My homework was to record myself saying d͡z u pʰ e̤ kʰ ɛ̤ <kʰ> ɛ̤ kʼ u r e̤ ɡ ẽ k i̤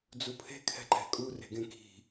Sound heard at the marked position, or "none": ǃ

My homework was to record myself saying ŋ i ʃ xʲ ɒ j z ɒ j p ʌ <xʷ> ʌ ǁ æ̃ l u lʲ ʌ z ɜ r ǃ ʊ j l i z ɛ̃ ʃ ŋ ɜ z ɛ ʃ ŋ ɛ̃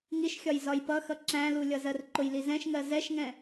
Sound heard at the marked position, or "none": x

